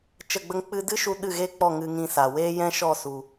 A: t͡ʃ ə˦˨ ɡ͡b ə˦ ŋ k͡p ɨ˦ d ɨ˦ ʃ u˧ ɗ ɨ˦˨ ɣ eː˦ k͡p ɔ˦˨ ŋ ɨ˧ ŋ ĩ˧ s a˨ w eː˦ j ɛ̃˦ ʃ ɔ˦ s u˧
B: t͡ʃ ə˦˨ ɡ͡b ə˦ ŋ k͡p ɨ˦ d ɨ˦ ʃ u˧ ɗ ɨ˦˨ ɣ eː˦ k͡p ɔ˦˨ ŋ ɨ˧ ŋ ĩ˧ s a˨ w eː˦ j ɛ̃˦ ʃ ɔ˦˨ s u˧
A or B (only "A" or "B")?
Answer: B